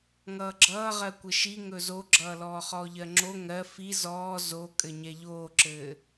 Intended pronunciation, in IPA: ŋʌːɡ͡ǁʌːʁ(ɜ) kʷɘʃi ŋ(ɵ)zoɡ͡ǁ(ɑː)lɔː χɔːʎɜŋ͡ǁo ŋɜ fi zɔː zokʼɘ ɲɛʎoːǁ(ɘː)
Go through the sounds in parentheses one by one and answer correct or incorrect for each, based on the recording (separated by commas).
correct, correct, incorrect, correct